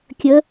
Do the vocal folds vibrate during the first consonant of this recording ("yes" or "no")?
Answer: no